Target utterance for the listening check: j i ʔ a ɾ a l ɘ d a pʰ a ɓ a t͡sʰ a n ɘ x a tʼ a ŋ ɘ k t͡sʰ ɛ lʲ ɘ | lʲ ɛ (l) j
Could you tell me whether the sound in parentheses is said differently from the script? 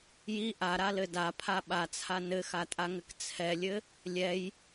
yes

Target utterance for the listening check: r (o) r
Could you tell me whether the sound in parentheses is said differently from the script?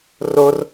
no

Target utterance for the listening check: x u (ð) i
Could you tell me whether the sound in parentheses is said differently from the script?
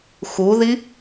no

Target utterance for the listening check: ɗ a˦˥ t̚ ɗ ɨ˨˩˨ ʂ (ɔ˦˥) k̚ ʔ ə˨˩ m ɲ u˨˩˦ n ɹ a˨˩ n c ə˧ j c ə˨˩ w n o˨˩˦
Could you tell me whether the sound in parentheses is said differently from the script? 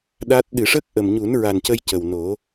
yes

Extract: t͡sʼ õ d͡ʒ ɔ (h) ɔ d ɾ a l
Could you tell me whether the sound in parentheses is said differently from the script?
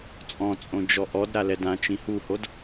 yes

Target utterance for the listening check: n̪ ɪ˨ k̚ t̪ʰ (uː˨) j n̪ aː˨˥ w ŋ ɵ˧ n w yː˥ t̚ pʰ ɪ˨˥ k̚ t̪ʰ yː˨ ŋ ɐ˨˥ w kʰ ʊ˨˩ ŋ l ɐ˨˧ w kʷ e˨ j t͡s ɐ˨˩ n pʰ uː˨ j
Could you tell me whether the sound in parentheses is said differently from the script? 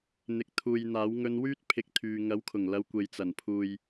no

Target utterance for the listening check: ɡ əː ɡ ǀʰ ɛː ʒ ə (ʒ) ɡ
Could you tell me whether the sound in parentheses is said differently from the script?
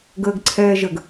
yes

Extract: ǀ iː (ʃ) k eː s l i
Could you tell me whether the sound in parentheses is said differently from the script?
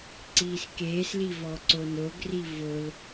yes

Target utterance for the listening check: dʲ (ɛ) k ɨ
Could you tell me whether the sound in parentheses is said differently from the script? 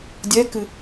no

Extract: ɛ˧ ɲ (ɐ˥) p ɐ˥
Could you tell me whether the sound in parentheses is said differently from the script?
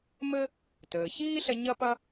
no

